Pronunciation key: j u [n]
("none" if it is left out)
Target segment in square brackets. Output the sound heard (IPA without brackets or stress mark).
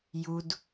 d